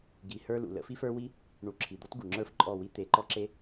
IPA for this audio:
ɡ i˨ h ə˞˧ l ṵ˨ l ə̰˧ f i˧ f ə˞˧ w i˦ | ɳ u˨˦ ǁʰ i˨ d̪ ɔ˦ t ɡ u˨ ŋ͡ǁ ə˞˦ f ǃʼ ɔ˦˨ w i˦ t̪ e˧ ǃ ɔ˦ ǁ e˦

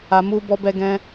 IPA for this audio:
a˨ m u˧ b ɔ˧ b ɛ˧ ɡ ɛ̃˧

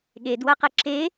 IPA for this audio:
ɠ e d w ɐ q ɛ ǁ e

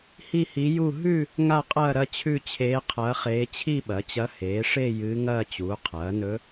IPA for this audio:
h i˥˧ h i˧˥ j u˥˧ ɦ ʉ˥˧ | ŋ a˥˧ qʼ ɐː˥˧ ɾ ɐ˥˧ t͡ɕʰ ʉ˥˧ t͡ɕʰ eː˧˥ qʰ ɐː˧˥ χ eː˧˥ t͡ɕʰ i˥˧ ɓ ɐ˩˥ t͡ɕ ɐ˧˥ h eː˩˥ ʂ e˥˧ j ɨː˧˥ ŋ ɐː˥˧ t͡ɕ uː˩˥ qʰ ɐː˩˥ n ɵ˧˥

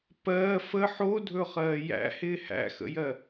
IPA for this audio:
p ɜː f ə ħ o dʱ ɵ χ ɜː j æ̰ h ɪː h æ̰ x ə̰ j ɜ

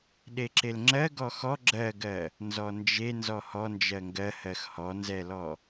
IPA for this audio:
ɗ e ǁ e l ŋ͡ǁ ɜ ɡ ɔ x ɔ ɡ͡ǁ ɜ ɡ ɜ | n z ɔ n d͡ʒ e n z ɔ h ɔ n d͡ʒ ɜ ŋ ɡ ɜ h ɜ x h ɔ n z ɛ l ɔ

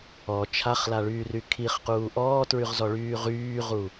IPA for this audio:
ɔ t͡ʃʰ a χ l a ɭ yː r y kʰ i χ q uː ʔ ɔː t ɹ y ʁ z ɔ ɭ yː ʁ yː ʁ u

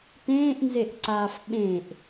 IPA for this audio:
t ẽː ʔ n z e ʔ ǀ aː f ɓ ẽ ʔ

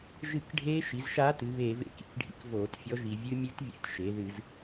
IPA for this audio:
ʒ ɨ˧˩˧ k ɖʱ eː˧˥ ʃ i˩˧ z ʃ aː˧˥ t ɨ˩˧ β eː˧˩˧ v ḛ˧˩˧ k ḭ˩˧ k ɖʱ ḭ˧˥ k v oː˧˩˧ t fʲ ɔ˧˥ ʒ i˧˩˧ vʲ ɨ˧˥ mʲ ɨ˧˥ t vʲ ḛ˧˥ t ʃ e˩˧ ð ɨ˧˩˧ z

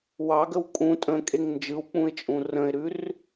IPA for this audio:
w ɑ ɡ ə w kʼ ũ tʼ ə̃ kʼ e ŋ n d͡ʒ ɯ w k͡p ũ ɪ̯ t͡ʃʼ ũ r ə̃ ɪ̯ ɾ ʉ r

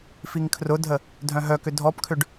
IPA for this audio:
f i ŋ kʰ r ʊ dʱ ə | dʱ œ̃ ɦ œ k ʏ dʱ ɔ p kʰ ʏ ɖ

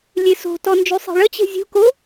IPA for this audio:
lʲ e s o̤ t ɔ n d͡ʒ y sˤ e̤ ɭ ə t͡ɕ e̤ zʲ ṳ k o

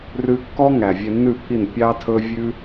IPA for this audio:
r ʉ˧ kː ɔ˦ ŋ æ˨ vʲ ɛ˧ nː ʉ˦˨ pʰ i˦˨ n pʲ ɑ˦ tʰ ɵ˦ vʲ ʉ˦

